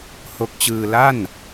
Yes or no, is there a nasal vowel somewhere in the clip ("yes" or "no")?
no